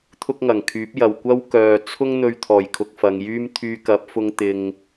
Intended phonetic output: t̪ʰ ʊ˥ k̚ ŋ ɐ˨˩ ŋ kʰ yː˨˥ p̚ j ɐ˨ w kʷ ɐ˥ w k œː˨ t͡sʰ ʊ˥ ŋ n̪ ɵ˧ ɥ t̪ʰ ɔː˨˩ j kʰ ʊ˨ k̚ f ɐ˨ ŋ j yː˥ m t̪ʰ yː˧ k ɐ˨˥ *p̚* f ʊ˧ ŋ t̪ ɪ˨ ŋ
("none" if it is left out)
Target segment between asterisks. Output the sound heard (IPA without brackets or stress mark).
p̚